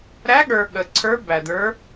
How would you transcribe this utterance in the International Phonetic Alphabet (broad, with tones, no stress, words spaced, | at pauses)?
ɾæ˧˥ɠə˞˨ ɠə˨ǀʰə˞˧˥ bæ˨də˞˧˥